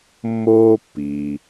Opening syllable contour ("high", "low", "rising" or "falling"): high